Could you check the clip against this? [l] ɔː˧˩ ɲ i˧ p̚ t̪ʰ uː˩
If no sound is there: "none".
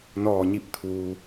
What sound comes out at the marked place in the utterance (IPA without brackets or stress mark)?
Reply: n